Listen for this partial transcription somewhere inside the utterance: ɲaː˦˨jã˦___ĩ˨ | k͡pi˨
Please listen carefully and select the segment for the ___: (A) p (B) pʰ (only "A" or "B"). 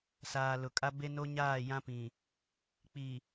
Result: A